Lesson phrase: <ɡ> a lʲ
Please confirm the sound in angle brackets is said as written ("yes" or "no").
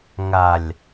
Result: no